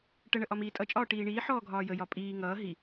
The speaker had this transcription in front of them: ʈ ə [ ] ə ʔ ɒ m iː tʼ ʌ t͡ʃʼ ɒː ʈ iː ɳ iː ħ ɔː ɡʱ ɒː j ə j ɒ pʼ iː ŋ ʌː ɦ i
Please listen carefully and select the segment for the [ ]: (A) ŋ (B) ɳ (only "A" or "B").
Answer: B